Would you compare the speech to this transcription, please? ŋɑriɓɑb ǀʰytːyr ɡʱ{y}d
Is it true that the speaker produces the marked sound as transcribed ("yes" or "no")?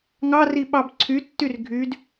yes